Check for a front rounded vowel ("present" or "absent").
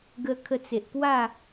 absent